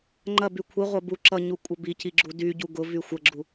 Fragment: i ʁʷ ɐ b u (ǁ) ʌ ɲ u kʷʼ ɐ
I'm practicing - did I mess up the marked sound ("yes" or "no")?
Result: no